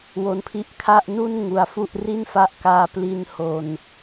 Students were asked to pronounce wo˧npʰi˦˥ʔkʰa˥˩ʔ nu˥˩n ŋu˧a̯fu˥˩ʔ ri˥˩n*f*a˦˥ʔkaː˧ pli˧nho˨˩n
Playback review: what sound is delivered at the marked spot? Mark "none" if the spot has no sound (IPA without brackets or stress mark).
f